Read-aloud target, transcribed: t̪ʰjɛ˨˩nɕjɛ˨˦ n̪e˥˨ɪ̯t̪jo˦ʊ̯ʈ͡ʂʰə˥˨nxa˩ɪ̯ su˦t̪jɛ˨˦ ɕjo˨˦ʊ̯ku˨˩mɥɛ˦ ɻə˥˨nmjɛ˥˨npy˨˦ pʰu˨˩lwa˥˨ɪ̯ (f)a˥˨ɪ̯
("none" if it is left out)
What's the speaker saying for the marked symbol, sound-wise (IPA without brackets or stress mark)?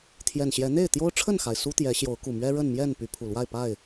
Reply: p